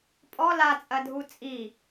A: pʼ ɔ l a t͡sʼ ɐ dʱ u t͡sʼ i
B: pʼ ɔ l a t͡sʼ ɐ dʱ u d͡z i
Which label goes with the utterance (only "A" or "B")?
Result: A